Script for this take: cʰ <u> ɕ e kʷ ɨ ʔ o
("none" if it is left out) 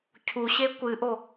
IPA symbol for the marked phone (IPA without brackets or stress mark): u